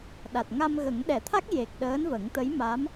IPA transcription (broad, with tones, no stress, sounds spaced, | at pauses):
ɗ a˨˩ t̚ ŋ a˧ m ɣ ə˨˩˦ ŋ ɗ ɛ˨˩˨ t̪ʰ a˦˥ k̚ j e˨˩ k̚ ɗ əː˧˥ n v ə˨˩˦ ŋ t̪ ə˧˥ j m a˧˥ m